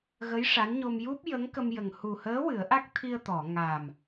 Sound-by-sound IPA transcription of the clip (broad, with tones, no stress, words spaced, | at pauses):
ɣə˧˥j ʂa˧˥nɲo˧m ju˦˥p̚jə˧˥ŋkə˧mjə˨˩ŋ hu˨˩həː˧˥ wɨ˨˩˦ə̯ʔa˦˥k̚t̪ʰi˧ə̯t̪ɔ˨˩˨ ŋa˨˩m